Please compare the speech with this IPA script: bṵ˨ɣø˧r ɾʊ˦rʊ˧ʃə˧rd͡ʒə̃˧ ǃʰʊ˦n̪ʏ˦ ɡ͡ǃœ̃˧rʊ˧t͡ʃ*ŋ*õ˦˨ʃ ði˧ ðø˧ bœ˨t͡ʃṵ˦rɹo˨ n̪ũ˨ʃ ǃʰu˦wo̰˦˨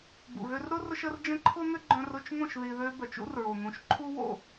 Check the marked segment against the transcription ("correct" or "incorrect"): correct